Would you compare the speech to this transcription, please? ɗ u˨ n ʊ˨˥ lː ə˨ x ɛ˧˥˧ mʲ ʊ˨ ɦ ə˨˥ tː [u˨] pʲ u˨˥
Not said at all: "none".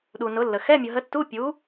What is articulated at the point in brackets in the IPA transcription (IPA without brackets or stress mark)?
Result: u˧˥˧